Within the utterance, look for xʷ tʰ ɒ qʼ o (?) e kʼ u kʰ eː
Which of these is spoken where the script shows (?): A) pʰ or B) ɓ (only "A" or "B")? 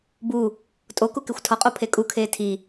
A